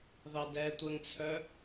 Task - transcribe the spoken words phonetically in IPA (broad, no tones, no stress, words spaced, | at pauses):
ðɑdɛtʷəŋt͡sʰœ